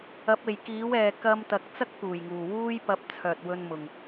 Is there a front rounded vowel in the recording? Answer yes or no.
yes